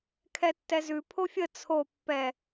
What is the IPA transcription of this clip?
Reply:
kʰ ɛ tː ɛ z ʉ pʰ o fʲ ə t͡sʰ o pː ɛ

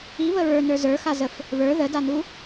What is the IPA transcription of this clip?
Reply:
i β ə ɹ ə˞ n ə˞ z ə˞ x a z ə f | β ə˞ ð ə d a n u

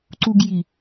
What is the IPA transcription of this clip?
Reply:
ǀ u ɡ j i

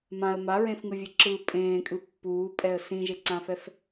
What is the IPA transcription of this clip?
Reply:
m ã ə̯ m a ɹ ẽ f ŋ ɯ vʲ ɯ ǁ ɯ pʼ ẽː kʼ ɯ pː uː pʼ ɛ ə̯ s ĩ ʒ e ǀ ã f ɛ f

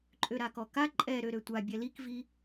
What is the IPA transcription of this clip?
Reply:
ǃʼ ø ɾ a k ɔ k a ǃʼ ɛ ɾ ø ɾ ø tʷ a bʲ ɛ l i k v i

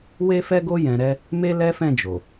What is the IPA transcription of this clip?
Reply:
w e˦ f ɛ˦ ɡ o˦ j ɛ̃˧ ɾ ɛ˦ | m e˦ l ɛ˦ f ɛ̃˦˨ d͡ʒ o˨

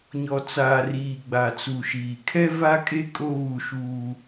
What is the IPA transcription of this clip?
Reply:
ɲ ɔ˨ t͡s aː˨ r iː˨ ɡ͡b a˨ t͡s u˨ ʃ iː˨ kʰ ɛ˦ v a˦ kʼ e˦ kʼ o˦ β u˦˨ ʃ uː˦

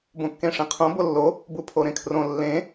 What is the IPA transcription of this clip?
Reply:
b õ kː ẽ ʂ ẽ qʰ õ b o lː o | b u pʰ o ɾ ẽ kʰ r õ lː ẽ

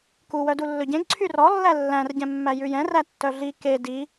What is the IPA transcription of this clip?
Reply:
k u w œ d u lː ɵ ɟ ẽ ɡ ǀʰ y r ɔ lː æ lː æ̃ r ɟ ɛ̃ mː æ j ʉ j ɛ̃ r æ tː œ ɮ i k e d i

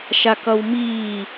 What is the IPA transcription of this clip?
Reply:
ʃ a k ʌ w m iː

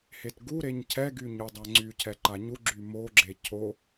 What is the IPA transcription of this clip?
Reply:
h e t ɡ u ɾ e ɲ cʰ ɛ ɡ y ɲ u dˤ a ŋ͡ǀ y cʰ ɛ ǃ a ɲ u ɡ͡ǁ y m o ɡ͡ǁ e cʰ o

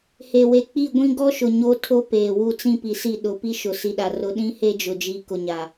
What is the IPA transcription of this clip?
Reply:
h e˨ w e˨ k͡p i˦˨ ɡʷ ĩ˦ ɡ ɔ˦ ʃ ʊ˨ ɲ o˦ tʰ o˦ p eː˨ w u˦˨ t͡s ĩ˦ p i˨ s i˦˨ ɗ ʊ˨ p i˦ ʃ ʊ˨ s i˨ ɗ a˨ r ʊ˨˦ ɗ ĩ˦ h e˦ d͡ʒ ʊ˨ d͡ʒ iː˨ k ʊ˨ ɲ a˨

